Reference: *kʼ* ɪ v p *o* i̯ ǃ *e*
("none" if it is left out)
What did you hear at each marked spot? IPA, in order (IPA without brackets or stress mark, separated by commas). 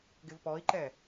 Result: ɡ, ɔ, ɛ